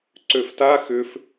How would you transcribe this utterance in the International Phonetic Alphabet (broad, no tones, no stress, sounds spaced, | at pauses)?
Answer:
ǀ ø f t a x ʏ f